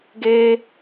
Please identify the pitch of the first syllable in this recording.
high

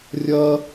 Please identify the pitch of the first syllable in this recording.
high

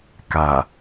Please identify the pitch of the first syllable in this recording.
low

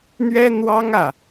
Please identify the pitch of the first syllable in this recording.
high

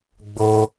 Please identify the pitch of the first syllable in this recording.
high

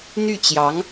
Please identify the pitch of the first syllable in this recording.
falling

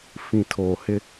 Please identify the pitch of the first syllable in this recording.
low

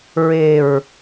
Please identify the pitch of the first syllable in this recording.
low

